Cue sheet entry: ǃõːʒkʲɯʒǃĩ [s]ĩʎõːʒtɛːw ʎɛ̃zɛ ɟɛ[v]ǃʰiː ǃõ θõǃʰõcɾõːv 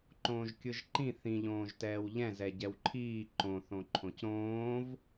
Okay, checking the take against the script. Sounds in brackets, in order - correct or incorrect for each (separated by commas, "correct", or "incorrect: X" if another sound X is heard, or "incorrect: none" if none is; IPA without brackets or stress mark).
incorrect: θ, incorrect: w